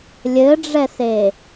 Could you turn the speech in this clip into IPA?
lʲ ɘ ɖ͡ʐ ɛ s e

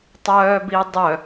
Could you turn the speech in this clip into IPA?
tˤ œː b i dˤ œ

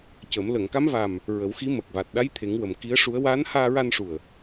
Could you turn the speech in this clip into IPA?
c ə˨˩˦ m l ə˨˩˨ ŋ k a˧˥ m v a˨˩ m | ɹ ə˨˩˦ w x i˧˥ m əː˨˩ k̚ v a˨˩ t̚ ɗ a˧˥ j t̪ʰ e˨˩˦ ŋ w ə˨˩ m k i˧˥ ə̯ ʂ u˧˥ ə̯ w aː˧˥ n h aː˧ ɹ a˧ n ʂ u˨˩ ə̯

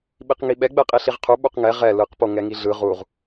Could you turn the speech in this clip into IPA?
ɓ i q ŋ i ɓ ɛ ɡ͡b ɛ qʼ i ɬ i ʁ qʰ u ɓ u q ŋ ɛ ʁ ɛ l ɯ q p o ŋ ɛ ŋ i ɮ ɯ ʁ u ʁ

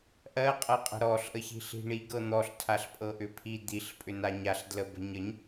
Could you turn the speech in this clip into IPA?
ʔ ɜ qʼ ɤ qʼ ə̤ ɾ ɔ ɬ ʔ ə ç i̤ ɬ i̤ ɳ i ɡ ɤ n̪ ɔ ɬ tʰ a ɬ pʼ ɤ ʔ ʏ pʰ i d̪ i ɬ pʼ ʏ n a ɲ a ɬ d l ə b ə̤ ɲ ə ɲ

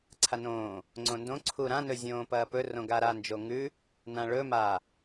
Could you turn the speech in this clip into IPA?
ǀʰ a n õː | ŋ͡ǀ õ n d õ ǀʰ u ɾ ã n ɵ zʲ õː p ɐː p ɵ r õ ɡ a ɾ a n d͡ʒ o ŋ ʉ | n ã ɭ ɵ m a

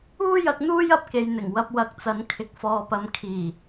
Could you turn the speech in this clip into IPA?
uː˥ j ɐ˨˥ k̚ n̪ uː˥ j ɐ˧ p̚ k e˨ j n̪ ɪ˨˩ ŋ w ɐ˧ p̚ w ɐ˨˥ k̚ t͡s ɐ˨˥ n kʰ ɪ˨˥ k̚ f ɔː˧ p ɐ˧ m kʰ iː˨˩

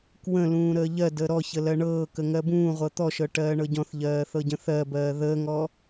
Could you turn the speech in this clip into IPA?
k w ə̃ l ũː ɾ əː ʎ ɜ d əː ɾ ɔ ç ə l ɜ ɳ ɤː k ə ŋ ɜ b ũː ʁʷ ɤ t̪ ɔ ʃ ɤ ʈ ɜː ɳ ɤ ɟ ɔ̃ θ ʎ ɜː θ ɤ ɟ ə̃ θ ɜ b ɜː ð əː ŋ ɔ

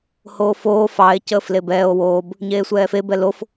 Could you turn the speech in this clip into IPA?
h oː f oː f ɑ e̯ c əː f l e b ɛː o̯ w oː b | ɲ eː sʷ ɛː f e b ɛ l o f

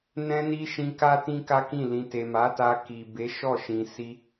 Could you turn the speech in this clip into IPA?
n ɛ̃˧ n i˧ ʃ ĩ˧ k a˦ t ĩ˦ k a˦ k ĩ˦˨ l ĩ˨ t e˨ m a˨˦ t a˧ k i˨ b e˨˦ ʃ ɔ˦˨ ʃ ĩ˨ s i˧

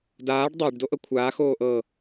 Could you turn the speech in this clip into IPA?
d aː ɖ dˤ a ɖ d o ʔ ɤ kʷʰ aː x oː ʔ ɤ

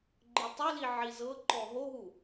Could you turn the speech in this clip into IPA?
ɡ͡ǃ ɯ tˤ o l i ʕ i z ɤ ǃ ɔ ɦ o ɦ u

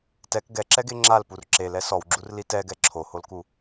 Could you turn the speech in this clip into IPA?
t ɛ k ɡ ɛ ǁ ɛ ɡ e ŋ͡ǁ a l p u r ǁ e l ɛ s ɔ w ɡ͡ǁ u r l i t ɛ ɡ ɛ ǁʰ o h o l k u

